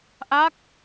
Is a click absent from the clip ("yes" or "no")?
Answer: yes